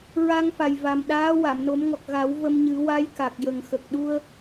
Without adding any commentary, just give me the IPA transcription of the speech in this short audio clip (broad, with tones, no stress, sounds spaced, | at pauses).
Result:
ɹ a˧ ŋ f a˨˩ j v a˨˩ m ɗ aː˧˥ w a˨˩˨ m n o˨˩˦ m ŋ ɔ˨˩ k̚ ɣ a˨˩˦ w v ə˧ m ɲ ɨ˨˩˦ w a˧˥ j k a˨˩ k̚ j ə˨˩ ŋ x ə˨˩ k̚ ɗ u˧ ə̯